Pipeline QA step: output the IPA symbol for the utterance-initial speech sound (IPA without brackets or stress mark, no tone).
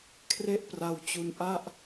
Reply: kʰ